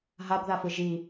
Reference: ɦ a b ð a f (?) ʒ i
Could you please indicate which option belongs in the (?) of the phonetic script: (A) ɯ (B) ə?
A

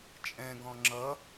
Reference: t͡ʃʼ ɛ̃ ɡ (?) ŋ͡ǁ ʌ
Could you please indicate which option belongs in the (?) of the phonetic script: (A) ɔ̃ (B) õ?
A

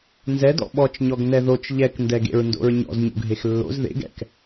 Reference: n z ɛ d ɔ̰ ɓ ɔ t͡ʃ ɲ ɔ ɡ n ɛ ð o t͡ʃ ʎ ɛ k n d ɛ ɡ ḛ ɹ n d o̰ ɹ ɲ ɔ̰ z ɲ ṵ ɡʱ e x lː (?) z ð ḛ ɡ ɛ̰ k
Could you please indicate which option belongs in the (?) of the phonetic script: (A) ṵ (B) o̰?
B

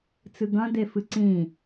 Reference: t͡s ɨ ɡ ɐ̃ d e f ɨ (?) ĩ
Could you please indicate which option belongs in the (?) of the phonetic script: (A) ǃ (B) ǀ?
B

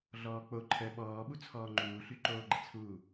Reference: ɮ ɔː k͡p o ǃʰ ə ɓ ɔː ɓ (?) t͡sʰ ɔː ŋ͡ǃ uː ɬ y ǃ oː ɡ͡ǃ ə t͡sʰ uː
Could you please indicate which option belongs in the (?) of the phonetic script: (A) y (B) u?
B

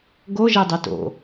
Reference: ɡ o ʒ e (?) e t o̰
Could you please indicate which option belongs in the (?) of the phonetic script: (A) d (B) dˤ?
B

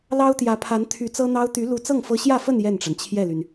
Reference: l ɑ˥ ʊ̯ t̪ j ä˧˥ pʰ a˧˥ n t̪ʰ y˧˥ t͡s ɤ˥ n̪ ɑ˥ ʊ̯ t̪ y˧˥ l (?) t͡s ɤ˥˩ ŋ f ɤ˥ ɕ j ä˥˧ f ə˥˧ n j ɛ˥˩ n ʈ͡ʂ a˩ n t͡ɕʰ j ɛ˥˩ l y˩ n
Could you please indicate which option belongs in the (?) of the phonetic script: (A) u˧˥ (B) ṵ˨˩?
A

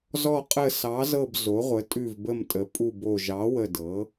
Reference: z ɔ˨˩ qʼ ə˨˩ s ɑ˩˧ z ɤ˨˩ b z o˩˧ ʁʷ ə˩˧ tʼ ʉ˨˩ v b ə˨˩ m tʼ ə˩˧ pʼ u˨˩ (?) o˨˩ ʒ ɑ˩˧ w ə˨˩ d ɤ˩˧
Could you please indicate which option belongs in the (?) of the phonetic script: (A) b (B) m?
A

